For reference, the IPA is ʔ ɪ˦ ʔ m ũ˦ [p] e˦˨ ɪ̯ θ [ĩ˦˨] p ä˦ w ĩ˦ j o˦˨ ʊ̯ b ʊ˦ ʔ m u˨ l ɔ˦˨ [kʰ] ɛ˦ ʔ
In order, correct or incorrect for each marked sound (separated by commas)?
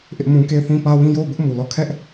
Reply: incorrect, incorrect, correct